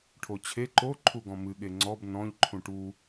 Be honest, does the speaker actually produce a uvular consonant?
no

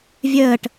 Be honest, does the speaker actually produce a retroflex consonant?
yes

